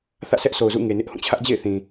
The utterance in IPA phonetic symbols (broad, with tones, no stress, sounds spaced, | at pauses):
θ ä̰˦˨ sʰ ɛ˦ ʔ s o˨ ʊ̯ z ṵ˦˨ ŋ e˨ n ɪ˦ ʔ h ũ˦˨ t͡ɕʰ ä˦ ʔ d͡ʑ ḛ˦˨ ɪ̯ θ ĩ˨